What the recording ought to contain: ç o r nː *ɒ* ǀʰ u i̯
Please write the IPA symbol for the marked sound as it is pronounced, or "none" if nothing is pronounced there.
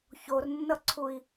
ʌ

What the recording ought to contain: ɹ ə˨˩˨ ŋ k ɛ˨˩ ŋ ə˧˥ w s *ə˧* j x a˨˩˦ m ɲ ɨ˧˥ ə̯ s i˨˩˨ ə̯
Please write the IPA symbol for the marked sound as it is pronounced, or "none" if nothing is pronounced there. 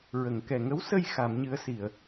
ə˧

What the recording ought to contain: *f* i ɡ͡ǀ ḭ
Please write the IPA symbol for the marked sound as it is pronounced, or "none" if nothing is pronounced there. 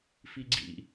f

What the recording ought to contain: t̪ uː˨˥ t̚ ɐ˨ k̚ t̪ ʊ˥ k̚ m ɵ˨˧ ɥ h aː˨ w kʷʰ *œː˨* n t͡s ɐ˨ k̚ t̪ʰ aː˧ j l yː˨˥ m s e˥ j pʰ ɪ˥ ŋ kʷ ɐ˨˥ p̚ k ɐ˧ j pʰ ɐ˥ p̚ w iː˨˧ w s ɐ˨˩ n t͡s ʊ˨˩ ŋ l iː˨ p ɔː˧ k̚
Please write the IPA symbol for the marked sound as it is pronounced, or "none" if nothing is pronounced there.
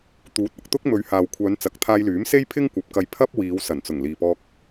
œː˨˧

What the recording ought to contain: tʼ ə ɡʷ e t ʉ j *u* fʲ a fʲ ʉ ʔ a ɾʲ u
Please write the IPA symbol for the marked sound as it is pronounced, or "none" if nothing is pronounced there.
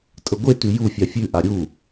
u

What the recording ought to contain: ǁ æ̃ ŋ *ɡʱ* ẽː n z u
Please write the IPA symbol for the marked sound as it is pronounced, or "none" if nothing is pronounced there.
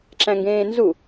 ɡ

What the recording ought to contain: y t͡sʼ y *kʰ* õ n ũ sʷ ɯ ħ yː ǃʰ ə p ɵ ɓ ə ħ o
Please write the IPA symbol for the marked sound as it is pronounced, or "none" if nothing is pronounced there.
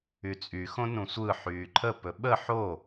x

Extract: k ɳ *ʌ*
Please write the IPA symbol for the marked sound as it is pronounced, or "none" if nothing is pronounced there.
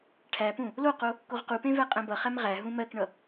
ʌ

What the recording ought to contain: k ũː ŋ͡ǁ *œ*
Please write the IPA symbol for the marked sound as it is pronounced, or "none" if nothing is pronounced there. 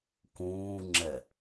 ɛ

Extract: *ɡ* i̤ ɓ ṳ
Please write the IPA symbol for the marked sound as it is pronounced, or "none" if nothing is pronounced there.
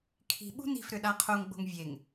kʰ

